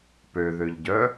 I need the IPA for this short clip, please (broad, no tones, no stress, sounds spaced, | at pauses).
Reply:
p ø ð ø ʎ ɟ œ